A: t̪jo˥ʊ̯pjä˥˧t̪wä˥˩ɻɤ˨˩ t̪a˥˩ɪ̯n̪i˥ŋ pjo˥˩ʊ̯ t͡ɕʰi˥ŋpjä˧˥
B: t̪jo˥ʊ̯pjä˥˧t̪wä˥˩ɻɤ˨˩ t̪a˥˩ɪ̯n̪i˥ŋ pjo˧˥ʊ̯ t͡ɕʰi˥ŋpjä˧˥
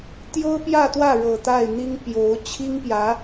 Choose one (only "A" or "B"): B